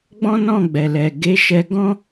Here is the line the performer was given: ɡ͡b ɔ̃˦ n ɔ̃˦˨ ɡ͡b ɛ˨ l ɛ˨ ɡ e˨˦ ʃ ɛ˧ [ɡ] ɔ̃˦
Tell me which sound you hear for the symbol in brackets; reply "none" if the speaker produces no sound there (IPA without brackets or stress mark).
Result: ɡ